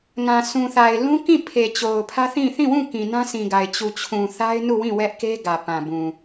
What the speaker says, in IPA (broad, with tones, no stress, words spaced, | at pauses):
ŋã˨sũ˨θa˨ɪ̯ lũ˦kĩ˦˨ pʰe˨t͡ɕo˨ʊ̯pʰä˦θĩ˦˨ θĩ˦˨wũ˦˨ kĩ˨nã˦sĩ˨ɡa˨ɪ̯ t͡ɕu˨t͡ɕʰũ˨ θa˦ɪ̯nu˦˨wĩ˦˨ wɛ˦ʔke˦ ɡä˨pã˨bũ˨